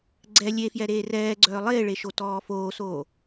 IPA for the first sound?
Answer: ɡ͡ǀ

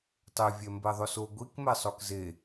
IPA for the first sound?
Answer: tˤ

